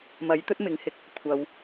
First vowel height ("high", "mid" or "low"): low